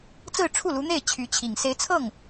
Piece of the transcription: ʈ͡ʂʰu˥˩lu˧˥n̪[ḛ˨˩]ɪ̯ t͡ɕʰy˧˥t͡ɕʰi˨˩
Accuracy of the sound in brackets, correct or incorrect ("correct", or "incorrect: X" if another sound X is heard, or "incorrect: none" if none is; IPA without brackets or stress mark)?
incorrect: e˥˩